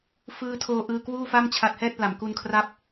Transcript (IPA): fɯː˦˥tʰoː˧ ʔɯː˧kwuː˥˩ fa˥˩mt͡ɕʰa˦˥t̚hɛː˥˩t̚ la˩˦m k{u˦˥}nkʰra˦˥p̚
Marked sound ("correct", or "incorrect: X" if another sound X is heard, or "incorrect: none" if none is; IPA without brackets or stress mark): incorrect: u˧